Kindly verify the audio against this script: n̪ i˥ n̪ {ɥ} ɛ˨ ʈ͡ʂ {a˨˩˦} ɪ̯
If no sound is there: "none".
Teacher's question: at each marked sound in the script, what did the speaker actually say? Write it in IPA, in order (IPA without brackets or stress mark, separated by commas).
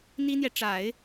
j, a˨˩˦